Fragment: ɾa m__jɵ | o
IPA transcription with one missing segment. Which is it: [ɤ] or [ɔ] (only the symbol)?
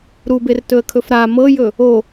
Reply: ɤ